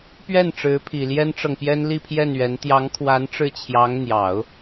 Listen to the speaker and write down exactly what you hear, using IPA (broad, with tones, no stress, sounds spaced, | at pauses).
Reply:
p ɥ ɛ˥˩ n ʈ͡ʂ ɻ̩˧˥ pʰ i˨˩ l j ɛ˥ n ʈ͡ʂ ɤ˨ ŋ p j ɛ˥ n l i˥˧ pʰ j ɛ˥˩ n ɥ ɛ˧˥ n t̪ j ɑ˧˥ ŋ kʰ w a˧˥ n ʈ͡ʂ ɻ̩˥˩ t͡ɕʰ j ɑ˧˥ ŋ n̪ j ɑ˨˩˦ ʊ̯